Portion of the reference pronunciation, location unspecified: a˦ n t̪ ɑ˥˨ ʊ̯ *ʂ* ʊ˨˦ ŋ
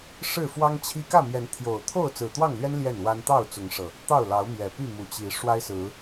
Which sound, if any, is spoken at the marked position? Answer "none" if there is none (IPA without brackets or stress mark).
t͡s